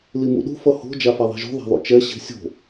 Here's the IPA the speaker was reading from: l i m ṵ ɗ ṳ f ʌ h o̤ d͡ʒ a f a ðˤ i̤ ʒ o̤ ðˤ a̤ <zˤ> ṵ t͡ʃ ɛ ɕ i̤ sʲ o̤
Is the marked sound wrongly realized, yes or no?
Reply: yes